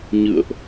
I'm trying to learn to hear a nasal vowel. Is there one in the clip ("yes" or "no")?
no